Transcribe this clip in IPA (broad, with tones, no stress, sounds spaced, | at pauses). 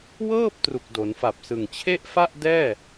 w ɤː˥˩ p̚ t r u˨˩ k̚ d o˩˦ n f a˨˩ p̚ s ɯ˨˩ ŋ t͡ɕʰ e˥˩ ʔ f a˥˩ ʔ d ɛː˥˩